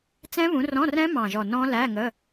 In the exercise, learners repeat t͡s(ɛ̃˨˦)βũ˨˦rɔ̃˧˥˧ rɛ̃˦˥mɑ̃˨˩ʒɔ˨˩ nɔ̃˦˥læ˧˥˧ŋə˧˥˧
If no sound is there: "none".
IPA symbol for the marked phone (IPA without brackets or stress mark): ɛ̃˦˥